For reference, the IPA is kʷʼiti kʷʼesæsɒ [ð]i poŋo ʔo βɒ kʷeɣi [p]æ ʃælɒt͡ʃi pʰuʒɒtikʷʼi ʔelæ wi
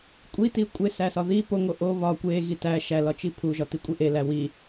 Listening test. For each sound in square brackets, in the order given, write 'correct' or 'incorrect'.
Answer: correct, incorrect: t

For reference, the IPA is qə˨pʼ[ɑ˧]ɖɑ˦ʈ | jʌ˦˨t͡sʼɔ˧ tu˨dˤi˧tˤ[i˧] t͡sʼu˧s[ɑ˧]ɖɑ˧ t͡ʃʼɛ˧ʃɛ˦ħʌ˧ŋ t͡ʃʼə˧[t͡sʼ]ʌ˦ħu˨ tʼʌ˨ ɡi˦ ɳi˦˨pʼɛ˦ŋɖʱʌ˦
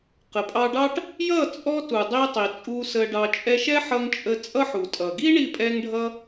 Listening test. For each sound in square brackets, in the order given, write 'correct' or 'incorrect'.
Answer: correct, incorrect: i˨, incorrect: ə˧, correct

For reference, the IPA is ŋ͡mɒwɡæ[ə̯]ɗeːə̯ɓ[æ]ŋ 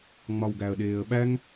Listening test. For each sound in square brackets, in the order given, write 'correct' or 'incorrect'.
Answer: correct, correct

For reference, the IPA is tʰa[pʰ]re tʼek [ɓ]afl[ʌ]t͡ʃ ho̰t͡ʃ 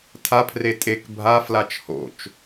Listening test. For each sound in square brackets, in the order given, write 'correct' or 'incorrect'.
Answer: correct, incorrect: bʱ, incorrect: a

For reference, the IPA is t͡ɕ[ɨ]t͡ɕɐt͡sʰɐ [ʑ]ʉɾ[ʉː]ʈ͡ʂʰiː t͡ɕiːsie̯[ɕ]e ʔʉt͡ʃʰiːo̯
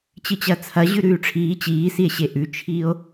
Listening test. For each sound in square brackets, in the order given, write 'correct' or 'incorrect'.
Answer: correct, correct, correct, correct

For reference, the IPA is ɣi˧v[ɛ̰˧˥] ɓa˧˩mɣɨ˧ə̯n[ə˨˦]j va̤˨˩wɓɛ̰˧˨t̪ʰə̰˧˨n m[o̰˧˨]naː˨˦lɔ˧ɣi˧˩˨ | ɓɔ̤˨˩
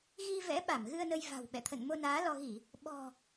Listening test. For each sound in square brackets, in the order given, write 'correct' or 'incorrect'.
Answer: correct, incorrect: ə˧, incorrect: o˧

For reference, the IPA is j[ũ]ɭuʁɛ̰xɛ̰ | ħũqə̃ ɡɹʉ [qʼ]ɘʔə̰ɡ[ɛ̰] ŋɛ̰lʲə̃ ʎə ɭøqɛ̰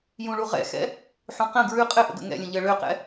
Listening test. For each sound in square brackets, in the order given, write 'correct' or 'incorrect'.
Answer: correct, correct, incorrect: ə̰

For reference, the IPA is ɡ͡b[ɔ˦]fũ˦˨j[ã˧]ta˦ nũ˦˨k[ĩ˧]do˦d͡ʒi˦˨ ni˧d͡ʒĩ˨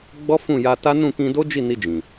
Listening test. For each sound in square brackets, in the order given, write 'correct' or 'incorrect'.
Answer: correct, incorrect: a˧, correct

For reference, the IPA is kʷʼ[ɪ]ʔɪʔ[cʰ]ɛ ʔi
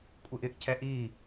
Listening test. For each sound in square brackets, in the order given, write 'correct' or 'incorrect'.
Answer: correct, correct

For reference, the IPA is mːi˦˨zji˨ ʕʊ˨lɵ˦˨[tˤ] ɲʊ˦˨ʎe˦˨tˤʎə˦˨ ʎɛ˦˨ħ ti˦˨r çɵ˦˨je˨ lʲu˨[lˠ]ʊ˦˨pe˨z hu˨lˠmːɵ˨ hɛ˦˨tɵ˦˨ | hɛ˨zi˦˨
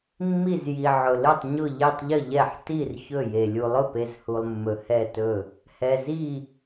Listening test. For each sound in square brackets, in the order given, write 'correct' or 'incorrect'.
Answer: correct, correct

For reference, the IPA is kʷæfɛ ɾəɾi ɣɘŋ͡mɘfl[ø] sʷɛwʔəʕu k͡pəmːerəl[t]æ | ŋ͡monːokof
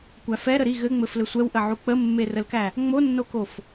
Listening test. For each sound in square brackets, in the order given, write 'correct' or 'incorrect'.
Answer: incorrect: ɘ, incorrect: k

